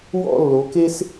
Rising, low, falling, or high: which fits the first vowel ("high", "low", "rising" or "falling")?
falling